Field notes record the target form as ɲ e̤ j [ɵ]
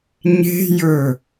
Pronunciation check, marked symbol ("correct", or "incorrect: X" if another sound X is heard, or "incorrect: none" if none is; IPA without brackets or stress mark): correct